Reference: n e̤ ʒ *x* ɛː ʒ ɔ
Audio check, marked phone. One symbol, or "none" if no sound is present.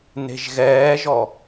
ɣ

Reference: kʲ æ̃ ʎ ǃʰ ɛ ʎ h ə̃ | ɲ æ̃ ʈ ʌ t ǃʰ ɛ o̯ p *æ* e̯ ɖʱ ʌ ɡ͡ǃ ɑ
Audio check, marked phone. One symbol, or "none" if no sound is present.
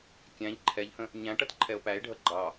æ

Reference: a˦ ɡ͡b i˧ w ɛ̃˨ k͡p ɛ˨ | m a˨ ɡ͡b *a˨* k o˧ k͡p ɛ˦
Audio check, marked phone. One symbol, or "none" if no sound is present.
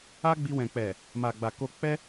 a˨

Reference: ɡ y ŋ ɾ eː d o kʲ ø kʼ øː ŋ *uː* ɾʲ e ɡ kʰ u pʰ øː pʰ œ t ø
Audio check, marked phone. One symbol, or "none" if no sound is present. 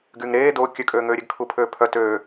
øː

